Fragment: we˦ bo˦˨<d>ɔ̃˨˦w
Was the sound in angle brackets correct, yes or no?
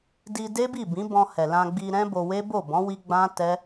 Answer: no